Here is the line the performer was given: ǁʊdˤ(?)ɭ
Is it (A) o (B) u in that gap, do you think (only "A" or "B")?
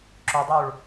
B